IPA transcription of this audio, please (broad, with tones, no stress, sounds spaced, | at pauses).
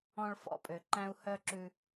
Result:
ɔ̃˦ ɭ f ɔ̰˥ pʼ ø˨ ǃ æ̃˥ u̯ h œ˥ ǁ ʉ˦